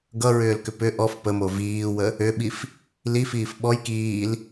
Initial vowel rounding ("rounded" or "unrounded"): unrounded